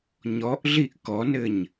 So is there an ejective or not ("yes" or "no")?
no